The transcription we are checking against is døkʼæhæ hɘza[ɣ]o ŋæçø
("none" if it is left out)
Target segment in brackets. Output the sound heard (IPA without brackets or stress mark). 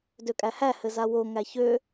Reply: w